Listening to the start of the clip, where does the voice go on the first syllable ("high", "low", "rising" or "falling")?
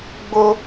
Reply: high